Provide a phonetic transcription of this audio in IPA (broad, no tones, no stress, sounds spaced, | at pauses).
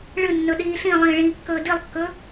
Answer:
ɭ ɨ nː ɵ ɗ iː ɬ ĩ lˠ ĩː ɭ ĩː kː ɵː d i lˠ kː ɵ